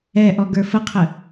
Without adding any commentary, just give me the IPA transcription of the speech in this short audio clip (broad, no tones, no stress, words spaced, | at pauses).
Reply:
ɛʔɔ ɡə˞fəqʰə